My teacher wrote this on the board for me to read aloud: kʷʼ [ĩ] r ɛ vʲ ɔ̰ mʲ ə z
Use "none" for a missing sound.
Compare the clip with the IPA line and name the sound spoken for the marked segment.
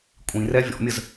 ĩ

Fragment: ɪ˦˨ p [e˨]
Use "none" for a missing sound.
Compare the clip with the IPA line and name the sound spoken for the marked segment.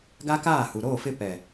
ɛ˨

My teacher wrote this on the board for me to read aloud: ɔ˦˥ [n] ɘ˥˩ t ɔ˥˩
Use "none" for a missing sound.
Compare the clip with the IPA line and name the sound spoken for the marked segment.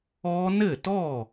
n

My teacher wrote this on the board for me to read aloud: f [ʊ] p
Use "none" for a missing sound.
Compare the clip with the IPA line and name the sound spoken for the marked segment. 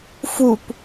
u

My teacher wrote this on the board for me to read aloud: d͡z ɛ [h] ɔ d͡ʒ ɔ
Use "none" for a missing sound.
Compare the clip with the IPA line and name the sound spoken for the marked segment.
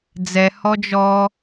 h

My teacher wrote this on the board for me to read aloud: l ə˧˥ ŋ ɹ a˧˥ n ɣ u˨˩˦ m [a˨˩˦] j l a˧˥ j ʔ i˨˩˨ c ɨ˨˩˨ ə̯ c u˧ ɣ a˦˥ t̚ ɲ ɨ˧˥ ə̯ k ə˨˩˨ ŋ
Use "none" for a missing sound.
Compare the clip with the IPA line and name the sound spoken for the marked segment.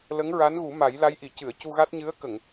a˨˩˦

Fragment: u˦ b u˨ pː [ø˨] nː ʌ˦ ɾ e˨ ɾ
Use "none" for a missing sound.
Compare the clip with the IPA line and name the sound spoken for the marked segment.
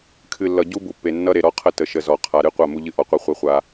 e˨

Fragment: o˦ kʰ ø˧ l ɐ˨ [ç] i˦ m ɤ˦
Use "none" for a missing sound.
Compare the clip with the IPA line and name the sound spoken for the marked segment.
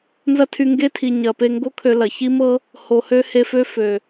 ç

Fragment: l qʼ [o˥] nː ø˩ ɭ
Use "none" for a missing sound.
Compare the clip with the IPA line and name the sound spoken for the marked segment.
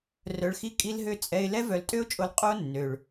o˥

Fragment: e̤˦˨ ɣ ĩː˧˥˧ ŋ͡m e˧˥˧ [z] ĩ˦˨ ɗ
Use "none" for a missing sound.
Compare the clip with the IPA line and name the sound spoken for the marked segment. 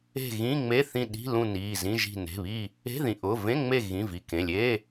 θ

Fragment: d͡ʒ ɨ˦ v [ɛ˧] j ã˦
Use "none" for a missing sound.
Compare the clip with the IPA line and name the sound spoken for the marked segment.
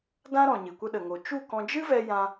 ɛ˧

